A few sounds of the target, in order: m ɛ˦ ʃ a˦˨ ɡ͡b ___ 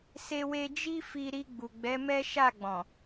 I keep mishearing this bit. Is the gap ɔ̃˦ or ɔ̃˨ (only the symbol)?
ɔ̃˨